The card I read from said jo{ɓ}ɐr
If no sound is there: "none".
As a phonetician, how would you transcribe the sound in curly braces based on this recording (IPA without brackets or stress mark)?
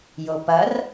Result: p